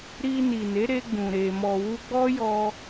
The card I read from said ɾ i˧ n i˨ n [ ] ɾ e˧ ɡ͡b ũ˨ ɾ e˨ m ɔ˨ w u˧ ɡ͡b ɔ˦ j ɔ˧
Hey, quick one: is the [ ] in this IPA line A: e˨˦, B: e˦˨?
A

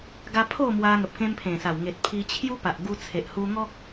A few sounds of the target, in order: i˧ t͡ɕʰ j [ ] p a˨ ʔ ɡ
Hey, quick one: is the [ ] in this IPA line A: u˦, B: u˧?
A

